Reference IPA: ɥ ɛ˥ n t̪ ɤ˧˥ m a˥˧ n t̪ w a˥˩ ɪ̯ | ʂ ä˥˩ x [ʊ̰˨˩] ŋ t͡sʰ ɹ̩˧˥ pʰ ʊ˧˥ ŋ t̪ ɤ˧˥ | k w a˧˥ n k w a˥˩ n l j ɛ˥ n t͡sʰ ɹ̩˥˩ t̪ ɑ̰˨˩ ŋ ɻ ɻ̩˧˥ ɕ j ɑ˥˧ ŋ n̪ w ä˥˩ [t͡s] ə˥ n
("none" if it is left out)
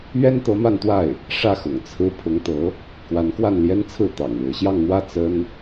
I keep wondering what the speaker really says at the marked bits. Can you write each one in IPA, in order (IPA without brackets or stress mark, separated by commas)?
ʊ̰˨˩, t͡s